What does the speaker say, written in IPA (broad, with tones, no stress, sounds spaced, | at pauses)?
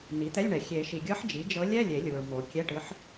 n i˩˥ t̪ ɛ˧˥˧ lʲ ɳ ɛ˨ xʲ e˨˩˦ ʃ i˨ ɡʲ ɤ˧˥ ħ d͡ʒ i˩˥ d͡ʒ ɤ˧˥ lʲ ɛ˧˥˧ lʲ e˨˩˦ lʲ u˨ ɹ m o˨ kʲ ɛ˧˥˧ ʈ ɯ˧˥ ħ